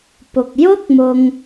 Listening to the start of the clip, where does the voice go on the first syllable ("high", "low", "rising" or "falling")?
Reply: low